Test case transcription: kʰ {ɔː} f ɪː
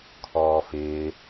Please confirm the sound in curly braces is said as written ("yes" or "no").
yes